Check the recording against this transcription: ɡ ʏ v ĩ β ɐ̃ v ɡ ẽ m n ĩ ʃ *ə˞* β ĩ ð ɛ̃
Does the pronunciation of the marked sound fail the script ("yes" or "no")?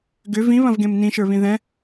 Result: no